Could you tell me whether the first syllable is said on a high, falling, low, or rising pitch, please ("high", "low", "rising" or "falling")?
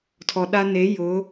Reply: low